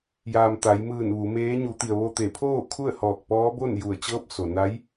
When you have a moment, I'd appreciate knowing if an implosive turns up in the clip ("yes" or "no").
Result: no